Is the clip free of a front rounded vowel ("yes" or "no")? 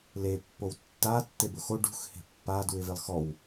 yes